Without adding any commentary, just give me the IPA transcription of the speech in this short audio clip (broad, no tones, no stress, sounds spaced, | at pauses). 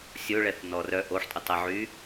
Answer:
sʲ o ɭ ɛ θ n ɔ r œ ʔ o ħ tʼ ʊ tˤ ɛ ʕ y